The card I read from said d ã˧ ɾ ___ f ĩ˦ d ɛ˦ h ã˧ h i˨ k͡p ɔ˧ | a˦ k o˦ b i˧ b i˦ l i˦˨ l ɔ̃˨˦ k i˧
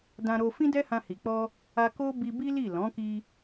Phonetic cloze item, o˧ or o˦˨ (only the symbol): o˧